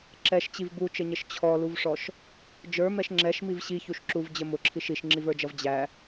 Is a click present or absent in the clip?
present